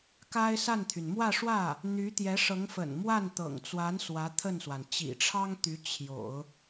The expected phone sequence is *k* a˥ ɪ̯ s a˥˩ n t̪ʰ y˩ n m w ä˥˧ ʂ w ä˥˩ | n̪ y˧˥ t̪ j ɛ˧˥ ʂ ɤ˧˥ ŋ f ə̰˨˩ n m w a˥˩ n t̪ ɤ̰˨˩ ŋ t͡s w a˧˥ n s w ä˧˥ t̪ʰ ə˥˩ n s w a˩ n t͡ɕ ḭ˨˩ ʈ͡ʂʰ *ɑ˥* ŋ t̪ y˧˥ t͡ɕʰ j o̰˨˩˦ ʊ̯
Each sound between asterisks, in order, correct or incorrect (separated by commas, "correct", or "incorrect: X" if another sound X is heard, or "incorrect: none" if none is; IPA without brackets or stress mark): correct, correct